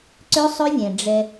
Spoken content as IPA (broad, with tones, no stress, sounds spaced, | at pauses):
ǀ ø˦ sˤ ø˦ vʲ ɛ̃˨ ɖ͡ʐ ɛ˦